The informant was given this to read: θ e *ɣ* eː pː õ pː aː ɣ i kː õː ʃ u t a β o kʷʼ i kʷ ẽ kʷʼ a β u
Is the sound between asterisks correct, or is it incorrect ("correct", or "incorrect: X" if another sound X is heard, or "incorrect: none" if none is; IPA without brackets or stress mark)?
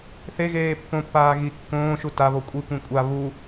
correct